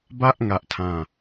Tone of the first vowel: high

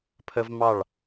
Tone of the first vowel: high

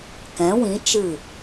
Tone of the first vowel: rising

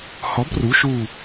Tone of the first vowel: rising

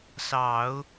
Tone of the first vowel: low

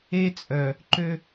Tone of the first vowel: high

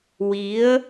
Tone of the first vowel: rising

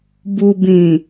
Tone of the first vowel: low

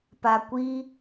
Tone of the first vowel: low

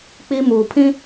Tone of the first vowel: high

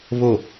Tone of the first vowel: low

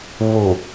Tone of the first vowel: low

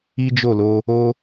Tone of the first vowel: high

